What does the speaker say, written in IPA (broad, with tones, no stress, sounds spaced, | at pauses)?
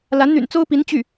l a˧˥ n n̪ y̰˨˩ n t͡s o˥ ʊ̯ p i˧˥ n t͡ɕ y˥˩